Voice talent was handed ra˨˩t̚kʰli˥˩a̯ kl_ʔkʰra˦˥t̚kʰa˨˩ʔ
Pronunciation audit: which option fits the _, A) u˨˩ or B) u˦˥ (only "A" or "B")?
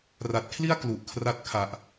A